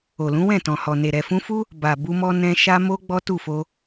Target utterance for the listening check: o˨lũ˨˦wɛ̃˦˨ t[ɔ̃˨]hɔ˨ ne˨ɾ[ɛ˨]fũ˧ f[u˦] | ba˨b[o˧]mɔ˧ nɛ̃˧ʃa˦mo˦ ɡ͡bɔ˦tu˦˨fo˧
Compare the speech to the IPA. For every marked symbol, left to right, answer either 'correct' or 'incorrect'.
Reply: correct, correct, correct, incorrect: u˧

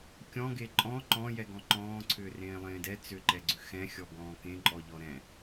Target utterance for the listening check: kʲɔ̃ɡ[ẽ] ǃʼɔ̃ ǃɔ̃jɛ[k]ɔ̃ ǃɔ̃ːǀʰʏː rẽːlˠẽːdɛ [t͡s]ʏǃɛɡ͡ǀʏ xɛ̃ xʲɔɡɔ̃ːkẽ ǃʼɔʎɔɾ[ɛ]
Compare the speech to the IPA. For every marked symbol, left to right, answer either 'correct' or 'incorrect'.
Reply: incorrect: e, incorrect: ɡ, correct, incorrect: ɛ̃

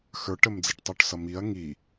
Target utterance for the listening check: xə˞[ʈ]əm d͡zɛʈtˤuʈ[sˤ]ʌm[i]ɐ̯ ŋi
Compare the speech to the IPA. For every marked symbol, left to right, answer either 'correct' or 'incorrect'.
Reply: correct, incorrect: s, correct

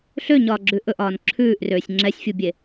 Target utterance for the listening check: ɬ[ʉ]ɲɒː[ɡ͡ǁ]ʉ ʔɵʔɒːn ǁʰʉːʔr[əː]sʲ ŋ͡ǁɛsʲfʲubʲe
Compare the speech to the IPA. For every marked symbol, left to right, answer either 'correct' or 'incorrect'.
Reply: incorrect: ø, correct, incorrect: øː

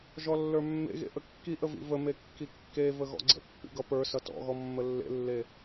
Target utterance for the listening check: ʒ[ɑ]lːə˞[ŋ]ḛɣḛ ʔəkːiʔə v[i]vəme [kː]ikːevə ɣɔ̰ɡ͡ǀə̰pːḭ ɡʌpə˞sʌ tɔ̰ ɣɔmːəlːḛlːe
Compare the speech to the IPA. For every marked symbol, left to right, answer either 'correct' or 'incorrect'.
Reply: incorrect: ɔ, incorrect: mː, incorrect: ḭ, correct

